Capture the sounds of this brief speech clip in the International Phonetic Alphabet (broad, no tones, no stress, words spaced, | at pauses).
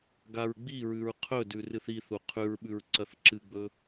ɡaɹɡ͡biɹʉɹ qʰɵdʉ rɨθiθu qʰʉɹɓʉɹ ǀɐθǁɨɡ͡bɵ